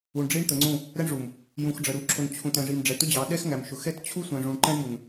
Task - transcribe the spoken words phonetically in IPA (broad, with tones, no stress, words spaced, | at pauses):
u˨ɳɖ͡ʐi˦ɳt̪ə˨ŋ͡ǀũ˦˨ | ɾɛ˦ɳʐu˨m | jũ˨xɖ͡ʐə˨ɾu˨ǁʰʊ˨n t͡ɕʰũ˨tɛ̃˨ʐi˨m ɖ͡ʐɛ˨tʊ˦d͡ʑɑ˨˦ ɗɛ˦xŋæ˨m ʃʊ˨xɛ˦t t͡ɕʰu˦sʷɛ̃˨ʐũ˨ɳ ǃɛ̃˦ɳmu˨n